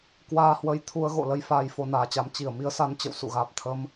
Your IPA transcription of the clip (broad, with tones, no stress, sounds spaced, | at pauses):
k w aː˧ h w ə˧ j t̪ʰ u˧ ə̯ ɣ o̰˧˨ l ə˧ j f aː˧ j f o˧ n aː˨˦ t͡ɕ a˨˦ m t͡ɕ i˧˩ ə̯ m i˨˦ ə̯ s a˨˦ n t͡ɕ ə̰˧˨ w s ṵ˧˨ ɣ aː˨˩ p̚ t̪ʰ ə˧ m